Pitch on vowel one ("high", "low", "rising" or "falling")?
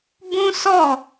high